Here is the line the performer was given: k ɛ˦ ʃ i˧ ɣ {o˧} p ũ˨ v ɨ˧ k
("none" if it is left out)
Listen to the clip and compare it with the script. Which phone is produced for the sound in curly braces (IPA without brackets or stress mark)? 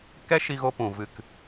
o˧